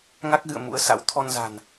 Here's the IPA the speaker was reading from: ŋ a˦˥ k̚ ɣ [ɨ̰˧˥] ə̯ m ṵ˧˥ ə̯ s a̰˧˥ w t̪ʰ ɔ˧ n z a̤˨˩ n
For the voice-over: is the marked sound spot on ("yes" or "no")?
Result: no